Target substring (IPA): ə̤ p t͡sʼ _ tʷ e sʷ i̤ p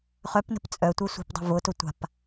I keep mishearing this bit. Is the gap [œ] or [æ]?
œ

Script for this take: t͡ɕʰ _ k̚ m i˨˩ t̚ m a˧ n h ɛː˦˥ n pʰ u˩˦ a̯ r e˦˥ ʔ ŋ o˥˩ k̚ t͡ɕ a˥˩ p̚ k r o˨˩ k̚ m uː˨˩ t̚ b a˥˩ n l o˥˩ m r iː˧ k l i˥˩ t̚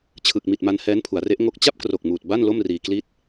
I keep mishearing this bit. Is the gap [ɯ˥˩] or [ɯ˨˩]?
ɯ˨˩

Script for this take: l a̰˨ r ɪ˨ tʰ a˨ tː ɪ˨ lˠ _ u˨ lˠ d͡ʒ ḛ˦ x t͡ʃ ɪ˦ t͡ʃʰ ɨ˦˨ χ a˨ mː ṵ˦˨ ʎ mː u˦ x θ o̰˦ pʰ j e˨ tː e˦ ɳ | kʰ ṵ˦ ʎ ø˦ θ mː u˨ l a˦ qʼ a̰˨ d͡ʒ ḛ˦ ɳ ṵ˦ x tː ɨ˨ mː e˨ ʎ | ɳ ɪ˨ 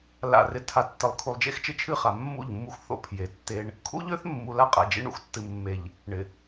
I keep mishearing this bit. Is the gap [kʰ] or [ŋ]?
kʰ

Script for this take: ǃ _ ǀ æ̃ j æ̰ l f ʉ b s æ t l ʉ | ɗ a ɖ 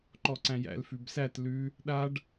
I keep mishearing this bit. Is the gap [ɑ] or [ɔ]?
ɔ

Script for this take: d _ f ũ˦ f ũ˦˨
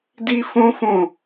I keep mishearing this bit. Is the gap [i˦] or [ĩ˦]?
i˦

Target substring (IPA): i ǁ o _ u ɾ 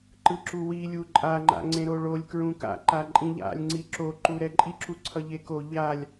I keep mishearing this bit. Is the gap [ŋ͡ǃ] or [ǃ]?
ǃ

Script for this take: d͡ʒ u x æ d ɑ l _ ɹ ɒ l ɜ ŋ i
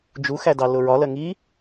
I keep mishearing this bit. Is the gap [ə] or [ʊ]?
ʊ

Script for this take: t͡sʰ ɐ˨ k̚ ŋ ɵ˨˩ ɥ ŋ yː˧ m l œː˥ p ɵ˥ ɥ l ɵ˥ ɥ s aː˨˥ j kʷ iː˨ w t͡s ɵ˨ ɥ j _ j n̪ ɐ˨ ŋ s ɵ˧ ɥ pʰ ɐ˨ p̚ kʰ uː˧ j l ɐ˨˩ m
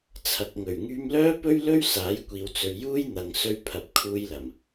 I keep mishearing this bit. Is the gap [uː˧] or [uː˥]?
uː˥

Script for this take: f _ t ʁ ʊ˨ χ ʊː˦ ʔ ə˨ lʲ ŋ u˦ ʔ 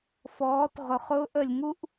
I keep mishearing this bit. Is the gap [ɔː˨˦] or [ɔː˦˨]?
ɔː˨˦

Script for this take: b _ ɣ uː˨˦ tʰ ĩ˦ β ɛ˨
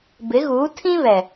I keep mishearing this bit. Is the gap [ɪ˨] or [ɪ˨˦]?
ɪ˨˦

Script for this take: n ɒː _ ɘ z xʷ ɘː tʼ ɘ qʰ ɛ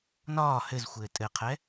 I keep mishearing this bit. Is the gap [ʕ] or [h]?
h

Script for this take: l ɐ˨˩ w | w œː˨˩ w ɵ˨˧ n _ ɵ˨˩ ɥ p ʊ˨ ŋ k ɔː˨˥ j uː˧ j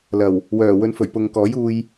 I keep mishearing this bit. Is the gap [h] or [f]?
f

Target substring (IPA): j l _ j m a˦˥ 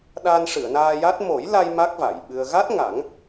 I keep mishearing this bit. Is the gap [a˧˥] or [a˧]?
a˧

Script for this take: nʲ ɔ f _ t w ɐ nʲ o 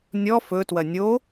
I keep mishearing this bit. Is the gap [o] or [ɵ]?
ɵ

